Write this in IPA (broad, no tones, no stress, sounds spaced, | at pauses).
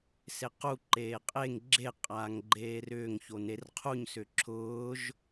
s e q u ǃ eː qʼ e ŋ ɡ͡ǁ e qʼ aː ŋ ɡ͡ǃ eː r ʏː ŋ ç o n e r qʰ u ɲ s ʏ ǁʰ ʊː ʒ